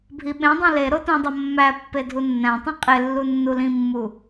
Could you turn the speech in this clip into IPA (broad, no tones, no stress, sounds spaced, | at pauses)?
bʱ i ɓ ẽ dˤ ĩ l e ɾ o t ũ dˤ o mː æ pː e dʱ u nː æ̃ tˤ ẽ qʼ e lː u nː u l ĩ mː u